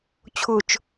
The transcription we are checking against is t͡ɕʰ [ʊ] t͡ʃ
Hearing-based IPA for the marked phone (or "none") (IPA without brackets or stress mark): ʊ